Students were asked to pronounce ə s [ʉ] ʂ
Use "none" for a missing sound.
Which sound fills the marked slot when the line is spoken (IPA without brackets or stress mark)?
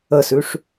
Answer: ʉ